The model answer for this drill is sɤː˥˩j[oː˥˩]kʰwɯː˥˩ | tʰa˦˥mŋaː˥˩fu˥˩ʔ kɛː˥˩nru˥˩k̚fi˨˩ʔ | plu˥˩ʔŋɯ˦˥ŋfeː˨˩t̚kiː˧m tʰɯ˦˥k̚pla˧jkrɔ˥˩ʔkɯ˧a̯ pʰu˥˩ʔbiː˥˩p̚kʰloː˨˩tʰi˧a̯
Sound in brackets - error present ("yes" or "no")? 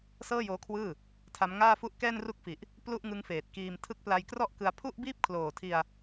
yes